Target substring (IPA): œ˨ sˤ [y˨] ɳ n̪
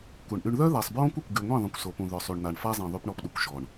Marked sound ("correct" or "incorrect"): correct